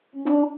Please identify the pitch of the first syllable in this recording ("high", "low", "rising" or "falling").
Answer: high